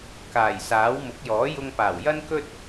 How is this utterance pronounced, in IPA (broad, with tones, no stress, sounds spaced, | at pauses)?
k aː˨˩ j s aː˨˥ w m ʊ˨˥ k̚ j ɔː˨˥ j ʊ˧ ŋ p aː˨˩ w j ɐ˥ n k ɵ˥ t̚